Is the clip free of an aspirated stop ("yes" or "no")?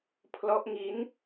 no